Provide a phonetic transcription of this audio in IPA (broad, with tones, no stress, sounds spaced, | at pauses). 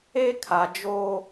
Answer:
e˦ kʰ a˨ d͡ʒ oː˦